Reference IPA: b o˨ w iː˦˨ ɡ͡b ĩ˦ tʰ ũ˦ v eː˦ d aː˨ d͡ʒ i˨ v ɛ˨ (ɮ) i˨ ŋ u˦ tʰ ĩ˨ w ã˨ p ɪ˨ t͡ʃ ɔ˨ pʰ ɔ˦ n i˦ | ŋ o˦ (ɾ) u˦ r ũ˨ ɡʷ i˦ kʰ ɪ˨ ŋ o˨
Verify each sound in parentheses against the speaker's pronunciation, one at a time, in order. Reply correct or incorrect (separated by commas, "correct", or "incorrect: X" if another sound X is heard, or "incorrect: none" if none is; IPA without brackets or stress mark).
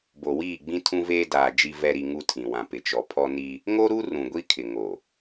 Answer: incorrect: ɾ, correct